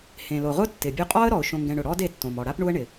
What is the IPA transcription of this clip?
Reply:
h ẽ˩ l o˩ ʁ ʊ˥ tː ɪ˩ bʲ u˧ qʼ ɔ˥ ə̯ ɾ ɔ˩ ʊ̯ ʃ õ˧ ŋ ɡ ɛ̃˧ ɳ ʊ˩ ɽ ɔ˥ d e˧ tː õ˩ m ɔ˩ ɽ a˥ p ɳ u˥ ə̯ ɳ ɪ˩

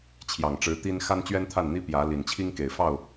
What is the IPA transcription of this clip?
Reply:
t͡ɕʰ j ɑ˨˩ ŋ ʈ͡ʂ ɻ̩˧˥ t̪ i˥ n x a˥ n t͡ɕ ɥ ɛ˥ n t̪ʰ a˥˩ n n̪ i˥ p j ä˧˥ l i˨˩ n t͡ɕʰ i˥ ŋ k e˨˩ ɪ̯ f ɑ˥˩ ʊ̯

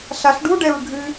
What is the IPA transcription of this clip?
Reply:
ɬ a ɬ ɖ u ɖ ɛ ɹ ɡʱ ɨ

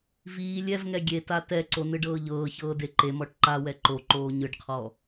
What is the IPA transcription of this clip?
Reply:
v iː lʲ ɛ v ŋ ɛ ɡʲ e t a t ɛ ǀ o n ɯ ɖ ɤː ʎ ɤː ç ɤː d e ǃ e m ɔ ʈ ǃ a w ɛ ǃ o ǃ oː ɲ ɯ ɖ qʰ ɔ

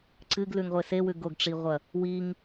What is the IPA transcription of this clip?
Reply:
ǀ ɨ ɡ l ʉ ŋ ʁʷ e s e w ʉ ɡ o ɡ ʈ͡ʂ i ʁʷ ɐ | w i ŋ

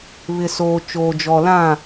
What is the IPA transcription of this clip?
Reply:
β ɪ˨ s oː˨ t͡ʃ oː˨ d͡ʒ ɔ˨ l ã˦˨

